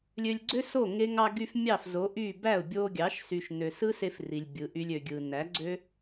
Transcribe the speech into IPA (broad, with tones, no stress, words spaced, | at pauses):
lʲø˧lʲ ɡ͡ǀø˦so˦˨ ŋe˧ŋɑ˧ɡy˧f mʲɑ˦˨fzo˨˦ʔy˦˨ bæ˦˨ʊ̯bʲo˧ɡʲɑ˨˦ʃ sy˨ʃnø˨sɯ˦se˧f ri˨lʲbʲɯ˨˦ʔy˦lʲ ø˨ɡʲɯ˨ næ˨˦ɡ͡ǀø˦